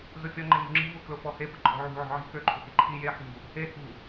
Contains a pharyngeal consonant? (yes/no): yes